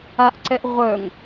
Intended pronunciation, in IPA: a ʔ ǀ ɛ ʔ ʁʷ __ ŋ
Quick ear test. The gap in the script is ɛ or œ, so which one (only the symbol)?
œ